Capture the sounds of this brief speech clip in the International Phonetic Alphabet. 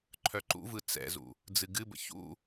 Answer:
ǃʰ œ ǃ ṵ v ɯ t͡s ɛ̰ z ṵ | d͡z ɨ ɡ ɨ b ə̰ ç ṵ

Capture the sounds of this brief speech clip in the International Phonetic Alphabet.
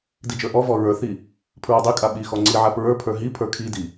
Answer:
d i d͡ʒ ə˞ ʔ ɔ v ɔ ɹ ə˞ θ i | pʰ ɹ a dˤ i kʼ a ɓ i x ɔ ŋ͡ǀ i ʕ a p ɹ ə˞ pʰ ə˞ ɦ i pʰ ə˞ kʰ i d i

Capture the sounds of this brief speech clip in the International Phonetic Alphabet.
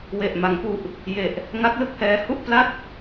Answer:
w e˨˩ ʔ m a˩˦ ŋ p u˨˩ ʔ | j e˨˩ ʔ | ŋ a˦˥ k̚ l ɯ˥˩ k̚ h ɛː˦˥ h u˥˩ ʔ p l a˥˩ t̚

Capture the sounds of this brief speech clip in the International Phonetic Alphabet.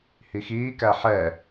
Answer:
h i x iː k æ ħ ɛ

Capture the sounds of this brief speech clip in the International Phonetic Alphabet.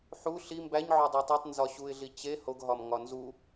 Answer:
ħ u ɬ i m b æ ɲ ʕ o dˤ e tˤ æ tˤ n z ɒ ɕ u ɪ̯ ɮ i t͡ɕ e h o ɡ ɦ ɒ m ŋ ɒ n z u

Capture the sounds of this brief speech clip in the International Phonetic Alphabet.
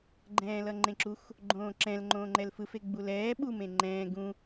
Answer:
ɡ͡ǃ ɛ̃ː l ʌ ŋ͡ǃ ẽ ǁ u x | ɡ͡ǃ õː ǁ ɛ̃ l ŋ͡ǃ õː ŋ͡ǃ ɛ l f ɯ f e ɡ͡b u l ɛː ɓ u m ẽ ŋ͡ǃ ɛ̃ː ɡ ũ

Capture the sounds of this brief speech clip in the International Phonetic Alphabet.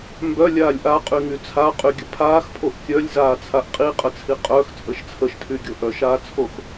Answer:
m b œ lʲ aː lʲ ʔ a qʼ y ŋ y t͡sʰ a qʼ y ɡʲ ə pʰ aː x pʰ o ʔ kʲ œ lʲ z aː t͡sʰ a ʔ qʼ i qʼ ə t͡sʰ i qʼ œ x t͡sʼ ə ʃ t͡sʰ ə ʃ tʰ y ɡʲ o ʔ œ ʃ aː t͡sʰ o x

